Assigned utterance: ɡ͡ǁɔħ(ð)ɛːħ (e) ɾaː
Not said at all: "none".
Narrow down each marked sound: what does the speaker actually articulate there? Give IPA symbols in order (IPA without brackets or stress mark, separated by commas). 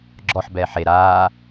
b, e